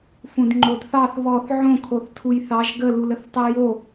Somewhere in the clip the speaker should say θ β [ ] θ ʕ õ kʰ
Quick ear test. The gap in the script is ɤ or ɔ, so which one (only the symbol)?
ɔ